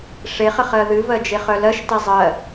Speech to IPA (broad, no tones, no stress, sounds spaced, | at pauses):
ʂ e χ ə χ ɜ ð ɨ v ɜ d͡ʒ e χ œ l ɜ ʃ t e zˤ ɜ